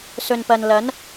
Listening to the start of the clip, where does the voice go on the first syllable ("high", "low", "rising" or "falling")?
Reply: low